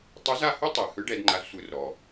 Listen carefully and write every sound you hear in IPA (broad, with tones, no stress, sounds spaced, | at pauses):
tˤ ɯ˧˥ z a˧ h ɵ˥ tˤ ɛ˩ h ɯ˧˥ ɖ ɛ˩˧ d ŋ͡ǃ a˧ z sʷ ɯ˧ r ɾ ɔ˩